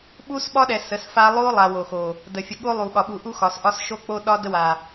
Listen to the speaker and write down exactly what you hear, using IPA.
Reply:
ɓ u˦ s ɓ ɒ˦ ɗ ɛ˨ s ə˨˦ s f a˦ lˠ o˦ lˠ a˨ w o˨ x o˨ | d ə˨ fʲ ə˨ ɠ o˦ lˠ u˨ ɠ ɒ˨ ɓ u˨ ʔ u˦ x ɒ˨ s ʔ ɒ˦ s ʃ o˦ k͡p o˦ ɗ ɒ˦ d ə˦ w a˨

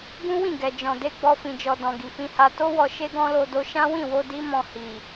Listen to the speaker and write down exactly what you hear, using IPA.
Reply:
ɡ ũ˦ w ĩ˦˨ ɡ ɛ˨ d͡ʒ ɔ̃˨ d e˧ ɡ͡b ɔ˧ f ĩ˨ d͡ʒ ɔ˨ d ɔ̃˨ ɡ i˨ f ĩ˧ h a˧ t o˦ w ɔ˧ ʃ e˦ ɡ ɔ̃˦ l o˧ d o˧ ʃ ã˦ w ĩ˦˨ w o˧ d i˦ m ɔ̃˧ h i˨

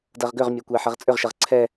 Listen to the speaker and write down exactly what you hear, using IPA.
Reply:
d ɐ ʁ ɡ ʏ ʁ mʲ ø kʷ ɛ ħ ɐ ʁ t͡sʼ ʏ ʁ ʃ ɐ ʁ ǀʰ ɛ

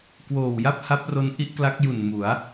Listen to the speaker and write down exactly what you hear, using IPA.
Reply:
k w oː˨˩ w j a˥˩ p̚ h a˦˥ p̚ r o˦˥ n ʔ i˦˥ ʔ k l a˦˥ k̚ j u˨˩ n m u˩˦ a̯

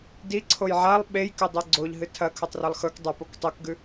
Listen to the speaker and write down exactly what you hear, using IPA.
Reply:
d i ǀʰ o j ʕ a lˠ ɓ e j k ɵ dˤ o ɡ͡ǀ o ʎ ɦ ɨ tʰ ɐ kʰ ɵ tˤ r ɐ lˠ x ɵ k dˤ ɐ p o k tˤ o k ɡ ʉ

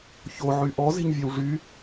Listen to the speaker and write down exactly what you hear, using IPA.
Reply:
ç o ʕ y ʔ ɔ z e̤ ɲ vʲ œ w ʐ y

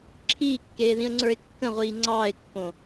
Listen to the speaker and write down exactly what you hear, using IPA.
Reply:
ǁʰ iː kː eː ð ĩ ə̯ ŋ͡ǀ ə˞ ɪ̯ kː ə̃ ʁʷ iː ŋ͡ǀ ɑː ɪ̯ kː õ

